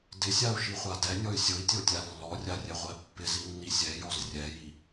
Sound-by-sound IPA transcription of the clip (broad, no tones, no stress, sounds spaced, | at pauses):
d ɪ sʲ a u̯ ʃ i χʷ a d ɛ nʲ ɔ y̯ sʲ ʊ i̯ tʲ o tʲ a lː ɔ rʲ a rʲ ɛ ʁʷ ɛ pː ɪ z i nː i sʲ ɛ j ɔ z rʲ ɛ j i